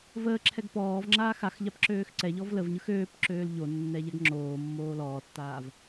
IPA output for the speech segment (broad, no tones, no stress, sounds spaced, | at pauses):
v əː ǁʰ ɛ ɡ p ɔː v ŋ͡ǁ aː x a x ʎ a p ǁ øː x ǀ ɛ ʎ ɔ v l ə v ɲ ɯ x øː p ǁ øː l ʎ o nː ɛ ʎ ɛ ɡ ŋ͡ǁ oː mː oː l ɔː tː aː v